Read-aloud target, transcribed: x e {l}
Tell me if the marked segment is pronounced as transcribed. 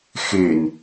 no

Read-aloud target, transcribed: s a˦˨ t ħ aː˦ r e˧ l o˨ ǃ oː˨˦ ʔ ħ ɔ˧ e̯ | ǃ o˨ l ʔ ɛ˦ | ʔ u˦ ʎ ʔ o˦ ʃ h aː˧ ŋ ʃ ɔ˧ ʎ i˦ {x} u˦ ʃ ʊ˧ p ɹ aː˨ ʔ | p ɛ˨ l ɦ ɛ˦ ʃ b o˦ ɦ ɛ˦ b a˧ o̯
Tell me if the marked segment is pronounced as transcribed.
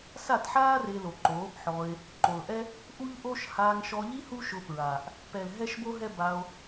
no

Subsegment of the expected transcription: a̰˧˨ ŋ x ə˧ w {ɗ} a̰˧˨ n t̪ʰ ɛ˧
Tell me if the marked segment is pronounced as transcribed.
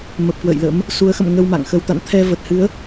no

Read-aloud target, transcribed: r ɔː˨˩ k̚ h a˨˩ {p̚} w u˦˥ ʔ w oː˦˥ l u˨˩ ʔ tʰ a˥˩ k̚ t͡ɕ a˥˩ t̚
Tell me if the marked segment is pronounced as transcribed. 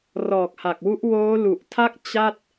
no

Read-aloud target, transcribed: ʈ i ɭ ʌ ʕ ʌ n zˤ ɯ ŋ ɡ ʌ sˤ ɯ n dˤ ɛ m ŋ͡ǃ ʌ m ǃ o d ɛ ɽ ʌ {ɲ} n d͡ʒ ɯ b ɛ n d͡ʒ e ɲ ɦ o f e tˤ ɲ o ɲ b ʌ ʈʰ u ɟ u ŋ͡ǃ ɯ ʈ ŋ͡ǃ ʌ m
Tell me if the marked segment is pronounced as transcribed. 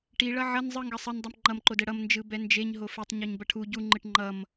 no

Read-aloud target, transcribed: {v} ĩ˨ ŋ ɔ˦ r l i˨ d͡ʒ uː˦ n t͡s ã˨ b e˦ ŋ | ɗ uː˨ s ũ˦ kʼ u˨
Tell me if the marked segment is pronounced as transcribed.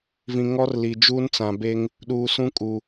yes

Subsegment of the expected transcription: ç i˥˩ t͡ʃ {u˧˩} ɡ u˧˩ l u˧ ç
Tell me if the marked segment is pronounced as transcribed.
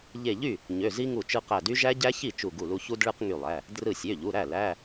yes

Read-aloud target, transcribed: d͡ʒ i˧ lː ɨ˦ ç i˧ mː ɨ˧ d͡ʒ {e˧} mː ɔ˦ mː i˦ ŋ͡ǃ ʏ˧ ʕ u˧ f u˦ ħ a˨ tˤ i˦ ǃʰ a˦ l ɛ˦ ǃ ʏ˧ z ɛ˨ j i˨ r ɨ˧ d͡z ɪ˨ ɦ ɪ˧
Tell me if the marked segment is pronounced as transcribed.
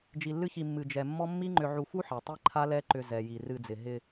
no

